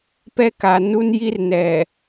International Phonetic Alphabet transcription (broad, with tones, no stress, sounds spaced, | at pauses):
p ɛ˦ k a˨ n u˦ n j i˦ r n ɛ˨